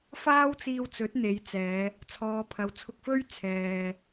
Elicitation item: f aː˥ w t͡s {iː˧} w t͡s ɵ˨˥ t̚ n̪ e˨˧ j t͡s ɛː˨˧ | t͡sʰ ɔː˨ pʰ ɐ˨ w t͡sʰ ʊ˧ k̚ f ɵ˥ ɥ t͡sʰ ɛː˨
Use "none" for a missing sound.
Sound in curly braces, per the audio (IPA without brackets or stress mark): iː˧